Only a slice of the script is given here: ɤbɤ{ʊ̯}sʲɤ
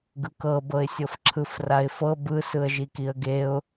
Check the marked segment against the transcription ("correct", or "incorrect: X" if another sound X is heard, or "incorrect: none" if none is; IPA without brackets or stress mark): incorrect: ɪ̯